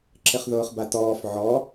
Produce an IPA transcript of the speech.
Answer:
ǁ ɪ χ ð ʊː χ b a t ɔː f ʕ ɔ

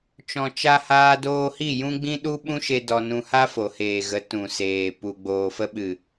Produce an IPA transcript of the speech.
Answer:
t͡ʃ ɔ̃˨ t͡ʃ a˧ h aː˧ d oː˧ h i˦˨ j ũ˦ ɡ͡b ĩ˦ ɗ u˦ ɓ ũ˦ ʃ e˧ d ɔ˧ n ũ˧ h a˦ f o˨ h eː˨ ɣ ə˨˦ t ũ˨ s eː˨ p u˧ ɡ͡b oː˨ f ə˧ ɓ ɨ˨

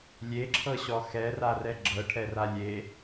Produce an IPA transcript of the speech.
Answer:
lʲ e ǁʰ ɤ ɕ ɔ x ɛ r a r ɛ ɡ͡ǁ ɤ ʈʰ ɛ r a lʲ e

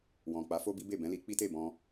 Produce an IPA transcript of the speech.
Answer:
w ɔ̃˨ k͡p a˨˦ f o˦ b i˦ b e˦˨ b ɛ̃˨˦ l i˧ k͡p i˦ t e˦˨ b ɔ̃˧

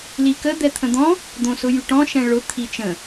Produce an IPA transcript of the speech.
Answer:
l i k ə d̪ ɛ t̪ʰ ə̃ d̪ ɔ̃ | d̪ õ s ʊ j y ʈ ɔ̃ ʃ ɛ̃ ɭ ʊ t̪ʰ i t͡ʃ ə̃

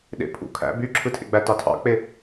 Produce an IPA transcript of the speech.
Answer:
ɗ ḛ pʰ ṵ kʰ æ̰ b y ǁʰ ɯ tʰ ḛ ɡ͡b æ t ɑ tʰ ɑ̰ k͡p e

